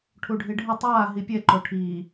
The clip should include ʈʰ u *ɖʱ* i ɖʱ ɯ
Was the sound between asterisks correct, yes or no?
yes